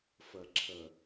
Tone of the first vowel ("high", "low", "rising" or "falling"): low